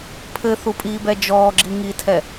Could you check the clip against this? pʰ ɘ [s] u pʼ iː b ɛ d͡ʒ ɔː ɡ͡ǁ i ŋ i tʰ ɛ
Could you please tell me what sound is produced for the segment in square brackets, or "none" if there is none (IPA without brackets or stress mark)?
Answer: θ